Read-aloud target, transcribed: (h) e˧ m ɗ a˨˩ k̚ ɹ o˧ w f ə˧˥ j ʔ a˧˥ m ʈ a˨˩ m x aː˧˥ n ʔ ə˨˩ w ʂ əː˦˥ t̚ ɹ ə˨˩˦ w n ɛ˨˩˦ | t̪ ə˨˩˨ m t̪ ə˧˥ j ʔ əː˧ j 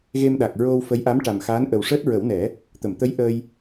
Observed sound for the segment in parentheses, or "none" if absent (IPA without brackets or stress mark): ɣ